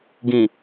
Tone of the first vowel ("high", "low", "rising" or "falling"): low